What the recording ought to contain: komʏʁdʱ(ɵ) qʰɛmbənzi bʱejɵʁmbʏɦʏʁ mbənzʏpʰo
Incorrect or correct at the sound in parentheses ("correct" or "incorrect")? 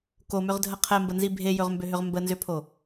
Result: incorrect